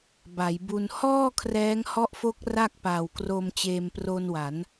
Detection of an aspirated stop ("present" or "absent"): present